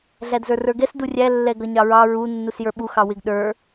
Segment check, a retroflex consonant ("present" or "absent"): absent